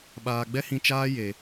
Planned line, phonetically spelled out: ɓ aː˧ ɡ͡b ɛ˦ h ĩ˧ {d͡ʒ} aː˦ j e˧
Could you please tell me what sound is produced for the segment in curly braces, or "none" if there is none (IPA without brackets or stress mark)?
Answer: t͡ʃ